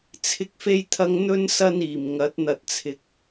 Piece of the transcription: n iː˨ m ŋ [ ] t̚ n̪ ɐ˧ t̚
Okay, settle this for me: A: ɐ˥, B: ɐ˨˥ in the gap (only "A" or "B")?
B